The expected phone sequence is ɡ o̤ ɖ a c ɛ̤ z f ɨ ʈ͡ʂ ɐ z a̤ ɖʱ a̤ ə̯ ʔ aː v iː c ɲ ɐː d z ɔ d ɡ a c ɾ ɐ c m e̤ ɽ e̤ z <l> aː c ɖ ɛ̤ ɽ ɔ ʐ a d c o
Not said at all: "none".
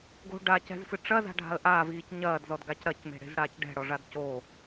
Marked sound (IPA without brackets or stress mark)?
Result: ɽ